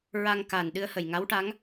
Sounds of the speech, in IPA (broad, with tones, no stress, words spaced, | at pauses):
ɹa˧ŋka˨˩nɗɨ˧ə̯ hə˨˩jŋa˧˥wʈa˧˥ŋ